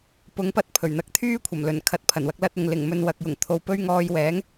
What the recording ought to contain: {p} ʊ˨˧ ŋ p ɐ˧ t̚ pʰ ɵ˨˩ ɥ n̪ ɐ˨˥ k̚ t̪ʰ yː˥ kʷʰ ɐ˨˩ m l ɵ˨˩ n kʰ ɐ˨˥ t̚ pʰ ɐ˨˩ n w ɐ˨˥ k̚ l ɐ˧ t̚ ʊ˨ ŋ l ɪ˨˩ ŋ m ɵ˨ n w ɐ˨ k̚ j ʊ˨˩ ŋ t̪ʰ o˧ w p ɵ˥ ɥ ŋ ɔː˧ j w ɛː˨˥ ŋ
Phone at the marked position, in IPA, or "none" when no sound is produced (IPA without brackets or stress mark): p